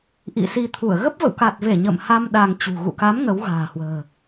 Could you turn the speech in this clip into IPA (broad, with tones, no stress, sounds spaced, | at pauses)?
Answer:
ʔ ḭ˧˨ s i˧ t̪ʰ u˧˩ ə̯ ɣ ə˦˥ p̚ v ə̰˧˨ w k a˨˩ t̚ v e˧˩ ɲ ə̰˧˨ m h a˧ m ɗ a˧ ŋ t͡ɕ ṳ˨˩ ɣ ṵ˧˨ k a˨˦ m ŋ ə˨˦ w ɣ a̤ː˨˩ h w ə̤ː˨˩